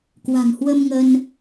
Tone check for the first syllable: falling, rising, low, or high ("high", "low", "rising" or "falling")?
low